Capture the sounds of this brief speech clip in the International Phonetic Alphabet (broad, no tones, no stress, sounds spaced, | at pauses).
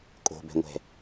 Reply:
kʼ o̤ b ɛ̤ ŋʷ ɛ̤